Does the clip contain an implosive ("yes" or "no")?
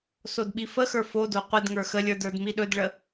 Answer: yes